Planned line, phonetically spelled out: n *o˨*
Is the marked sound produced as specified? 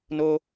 no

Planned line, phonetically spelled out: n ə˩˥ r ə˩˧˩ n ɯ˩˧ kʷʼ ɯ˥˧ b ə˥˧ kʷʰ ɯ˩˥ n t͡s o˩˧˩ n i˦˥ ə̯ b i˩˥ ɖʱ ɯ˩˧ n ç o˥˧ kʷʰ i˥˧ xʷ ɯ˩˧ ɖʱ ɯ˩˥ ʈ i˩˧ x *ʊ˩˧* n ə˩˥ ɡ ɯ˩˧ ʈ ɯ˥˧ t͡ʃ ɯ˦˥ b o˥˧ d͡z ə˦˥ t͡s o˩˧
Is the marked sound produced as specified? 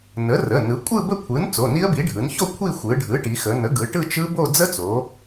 no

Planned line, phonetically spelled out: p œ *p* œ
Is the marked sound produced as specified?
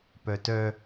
no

